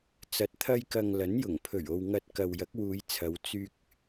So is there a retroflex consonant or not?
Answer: no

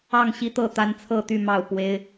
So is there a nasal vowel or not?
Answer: no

